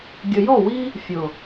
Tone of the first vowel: low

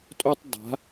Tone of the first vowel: high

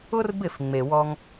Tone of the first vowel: high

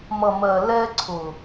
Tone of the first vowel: low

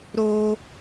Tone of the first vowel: high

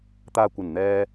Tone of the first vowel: low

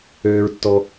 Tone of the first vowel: high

